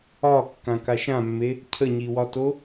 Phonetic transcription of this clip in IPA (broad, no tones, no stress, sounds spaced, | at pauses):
ɒ kː ã k a ʃ ã mː e | cʰ ə ɲ i w ɒ t o